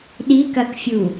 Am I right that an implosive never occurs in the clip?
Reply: no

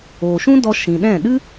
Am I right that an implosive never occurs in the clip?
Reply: no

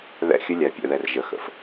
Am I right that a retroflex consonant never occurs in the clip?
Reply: yes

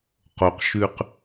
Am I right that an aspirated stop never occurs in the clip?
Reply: yes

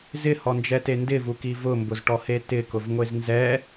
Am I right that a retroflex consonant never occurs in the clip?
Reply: no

